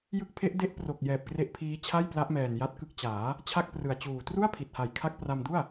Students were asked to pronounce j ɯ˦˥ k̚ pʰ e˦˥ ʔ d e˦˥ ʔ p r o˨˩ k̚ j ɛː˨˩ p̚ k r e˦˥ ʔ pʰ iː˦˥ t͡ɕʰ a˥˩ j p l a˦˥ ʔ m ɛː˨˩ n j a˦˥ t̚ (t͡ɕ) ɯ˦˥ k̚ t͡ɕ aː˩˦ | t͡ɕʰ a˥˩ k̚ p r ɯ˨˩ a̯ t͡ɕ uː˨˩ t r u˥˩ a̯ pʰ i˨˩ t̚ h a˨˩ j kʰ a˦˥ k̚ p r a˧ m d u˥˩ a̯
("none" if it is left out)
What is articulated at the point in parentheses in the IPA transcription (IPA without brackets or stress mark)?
k